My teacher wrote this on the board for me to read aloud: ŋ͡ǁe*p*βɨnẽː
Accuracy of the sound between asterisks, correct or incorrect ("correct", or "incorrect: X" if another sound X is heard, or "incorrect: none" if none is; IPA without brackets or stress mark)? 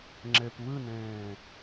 correct